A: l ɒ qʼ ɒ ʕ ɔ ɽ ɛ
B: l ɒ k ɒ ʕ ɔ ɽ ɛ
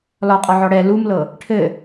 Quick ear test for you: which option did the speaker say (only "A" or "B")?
A